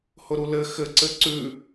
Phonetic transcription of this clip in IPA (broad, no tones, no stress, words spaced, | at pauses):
hʊɾulɘ xɘ ǀɘǀʉ